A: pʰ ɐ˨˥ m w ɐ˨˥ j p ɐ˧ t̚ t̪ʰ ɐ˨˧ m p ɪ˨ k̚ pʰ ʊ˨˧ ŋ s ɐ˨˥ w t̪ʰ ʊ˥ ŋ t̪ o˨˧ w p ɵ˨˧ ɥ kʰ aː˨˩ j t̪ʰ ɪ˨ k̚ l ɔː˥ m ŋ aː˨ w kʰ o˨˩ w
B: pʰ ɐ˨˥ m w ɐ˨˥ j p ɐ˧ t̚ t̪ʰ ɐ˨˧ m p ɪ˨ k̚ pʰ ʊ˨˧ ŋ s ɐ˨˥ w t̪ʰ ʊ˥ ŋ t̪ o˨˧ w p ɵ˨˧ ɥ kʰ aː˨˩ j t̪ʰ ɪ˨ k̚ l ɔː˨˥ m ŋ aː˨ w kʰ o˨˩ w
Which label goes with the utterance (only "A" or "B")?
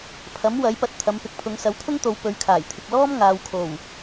A